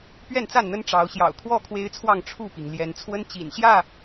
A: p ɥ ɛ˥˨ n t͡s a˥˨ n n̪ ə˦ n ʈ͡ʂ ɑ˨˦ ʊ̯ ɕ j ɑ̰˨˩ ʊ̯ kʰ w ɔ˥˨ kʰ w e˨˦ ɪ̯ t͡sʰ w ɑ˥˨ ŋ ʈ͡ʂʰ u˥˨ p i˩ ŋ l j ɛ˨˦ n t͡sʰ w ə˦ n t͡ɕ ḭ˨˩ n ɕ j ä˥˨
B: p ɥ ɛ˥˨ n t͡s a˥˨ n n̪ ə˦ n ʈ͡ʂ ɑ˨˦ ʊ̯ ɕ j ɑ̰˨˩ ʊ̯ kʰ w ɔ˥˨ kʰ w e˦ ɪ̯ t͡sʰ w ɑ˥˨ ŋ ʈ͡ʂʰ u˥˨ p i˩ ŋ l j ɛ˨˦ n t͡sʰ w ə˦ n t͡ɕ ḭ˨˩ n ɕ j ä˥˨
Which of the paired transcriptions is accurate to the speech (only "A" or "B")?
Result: B